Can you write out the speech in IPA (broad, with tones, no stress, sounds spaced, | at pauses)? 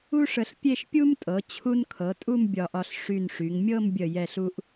u˥ ʂ ə˧ ɬ pʲ e˥˧ ʃ pʲ u˥ m tʼ ɤ˩˧ t͡ɕʰ u˧ n kʰ ɤ˩˧ tʼ u˥˧ m bʲ ɒ˧˩ ʔ ɒ˧ ɬ ʂ y˧˩ n ʂ y˩˧ ŋ mʲ ɤ˥˧ m bʲ ə˧˩ j ɛ˧˩ ɬ u˧ ʔ